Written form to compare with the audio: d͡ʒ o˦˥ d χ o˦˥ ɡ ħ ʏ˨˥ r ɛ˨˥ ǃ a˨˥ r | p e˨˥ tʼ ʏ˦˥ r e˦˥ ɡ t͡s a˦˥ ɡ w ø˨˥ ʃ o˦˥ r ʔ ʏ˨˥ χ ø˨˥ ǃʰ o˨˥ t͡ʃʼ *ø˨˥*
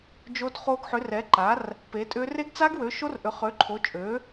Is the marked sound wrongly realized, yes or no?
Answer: no